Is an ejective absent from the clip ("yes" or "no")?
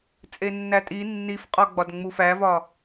no